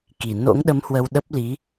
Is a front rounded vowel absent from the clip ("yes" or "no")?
yes